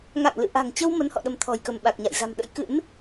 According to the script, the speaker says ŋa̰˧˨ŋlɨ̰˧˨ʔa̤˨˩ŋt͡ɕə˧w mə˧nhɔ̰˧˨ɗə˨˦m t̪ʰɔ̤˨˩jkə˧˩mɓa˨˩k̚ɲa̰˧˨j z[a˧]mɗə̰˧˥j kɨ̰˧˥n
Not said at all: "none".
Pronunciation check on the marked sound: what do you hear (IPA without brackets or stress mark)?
a̤˨˩